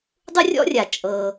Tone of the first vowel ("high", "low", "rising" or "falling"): high